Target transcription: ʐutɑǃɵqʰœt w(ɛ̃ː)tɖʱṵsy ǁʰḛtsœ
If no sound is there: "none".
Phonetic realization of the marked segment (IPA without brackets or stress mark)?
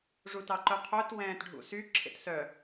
ɛ̃ː